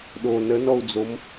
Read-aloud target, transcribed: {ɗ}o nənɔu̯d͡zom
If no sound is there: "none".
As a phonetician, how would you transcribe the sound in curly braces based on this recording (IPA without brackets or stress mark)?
ɗ